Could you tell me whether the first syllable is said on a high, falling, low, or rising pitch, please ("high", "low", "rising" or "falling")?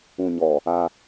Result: low